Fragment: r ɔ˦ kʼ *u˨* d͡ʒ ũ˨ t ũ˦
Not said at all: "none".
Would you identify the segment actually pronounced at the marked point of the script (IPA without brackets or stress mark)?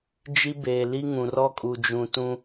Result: u˨